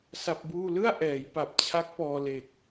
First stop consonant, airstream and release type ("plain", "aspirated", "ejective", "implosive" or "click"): plain